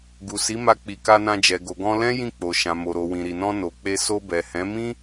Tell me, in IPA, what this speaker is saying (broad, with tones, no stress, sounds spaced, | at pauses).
ɡ u˨ s i˨˦ m a˧ k͡p i˨ k a˧ n ã˧ d͡ʒ ɛ˨ ɡ o˨ ɡ ɔ̃˧ l ɛ̃˦ j ĩ˦˨ k͡p o˨ ʃ ã˨ m o˨ ɾ o˨ w ĩ˨ ɾ i˨ n ɔ̃˧ n o˨ k͡p e˧ s o˧ b ɛ˨ h ɛ̃˨˦ m ĩ˦